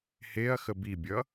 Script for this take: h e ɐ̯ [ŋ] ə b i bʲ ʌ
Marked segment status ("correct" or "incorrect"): incorrect